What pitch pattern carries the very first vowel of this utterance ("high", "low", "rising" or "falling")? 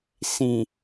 low